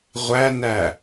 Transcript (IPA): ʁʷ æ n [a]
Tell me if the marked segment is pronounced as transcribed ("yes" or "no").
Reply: no